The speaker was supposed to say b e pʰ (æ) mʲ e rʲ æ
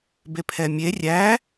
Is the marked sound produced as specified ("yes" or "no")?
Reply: no